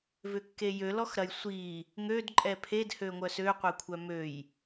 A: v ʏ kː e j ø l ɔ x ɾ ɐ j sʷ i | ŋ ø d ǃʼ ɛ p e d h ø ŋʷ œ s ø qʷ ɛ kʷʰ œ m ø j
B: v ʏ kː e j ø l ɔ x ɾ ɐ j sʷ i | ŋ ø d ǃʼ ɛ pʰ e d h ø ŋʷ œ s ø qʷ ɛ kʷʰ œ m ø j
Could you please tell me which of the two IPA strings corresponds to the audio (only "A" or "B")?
B